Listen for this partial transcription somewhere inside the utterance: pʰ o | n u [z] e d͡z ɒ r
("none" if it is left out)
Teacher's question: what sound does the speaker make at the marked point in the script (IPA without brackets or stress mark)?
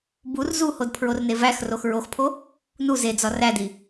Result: z